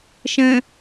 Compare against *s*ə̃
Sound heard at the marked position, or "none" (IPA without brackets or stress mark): ʃ